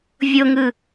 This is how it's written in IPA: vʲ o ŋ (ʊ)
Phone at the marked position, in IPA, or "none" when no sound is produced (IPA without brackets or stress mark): ɯ